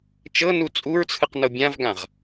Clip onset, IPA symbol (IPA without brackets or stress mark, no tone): t͡ʃ